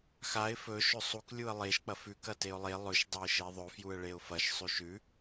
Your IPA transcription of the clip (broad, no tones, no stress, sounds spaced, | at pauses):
x a ɪ̯ f ɵ ʃ ɵ sˤ u k lʲ u ə̯ lˠ e ʃ k͡p ɐ f ʉ k ɐ t e ʊ̯ lˠ e lˠ ɵ ʃ dˤ ɵ ɪ̯ ʃ e ðˤ ɵ f j u ə̯ ɭ e ʊ̯ f ɐ ʃ sˤ ʉ ʃ ʉ